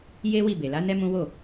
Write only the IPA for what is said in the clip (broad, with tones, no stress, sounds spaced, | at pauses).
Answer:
j e˦ w i˦˨ b e˨ l a˨˦ n ɛ˦ m ũ˦ w o˦˨